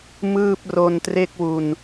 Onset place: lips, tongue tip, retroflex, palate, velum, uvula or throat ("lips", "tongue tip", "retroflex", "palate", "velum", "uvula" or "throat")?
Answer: lips